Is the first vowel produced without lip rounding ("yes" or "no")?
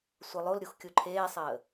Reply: yes